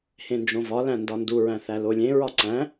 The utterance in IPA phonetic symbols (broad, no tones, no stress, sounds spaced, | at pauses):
h ẽ n d͡ʒ õ v ɒ l æ̃ n d ɒ n d u ɹ æ̃ θ æ l o lʲ ẽ ɹ ɒ ǀ æ̃